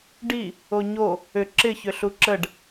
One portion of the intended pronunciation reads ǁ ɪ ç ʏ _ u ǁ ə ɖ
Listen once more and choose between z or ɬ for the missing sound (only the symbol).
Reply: ɬ